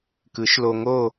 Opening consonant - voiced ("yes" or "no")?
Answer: no